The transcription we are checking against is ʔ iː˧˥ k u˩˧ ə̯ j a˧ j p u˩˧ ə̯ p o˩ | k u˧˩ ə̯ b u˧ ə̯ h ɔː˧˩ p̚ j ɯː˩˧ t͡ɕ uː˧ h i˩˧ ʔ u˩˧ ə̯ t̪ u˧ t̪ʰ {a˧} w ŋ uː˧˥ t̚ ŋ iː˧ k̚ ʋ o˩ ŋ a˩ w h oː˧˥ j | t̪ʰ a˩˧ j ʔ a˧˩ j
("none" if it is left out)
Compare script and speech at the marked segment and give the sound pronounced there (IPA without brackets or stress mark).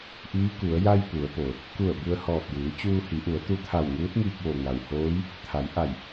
a˧˩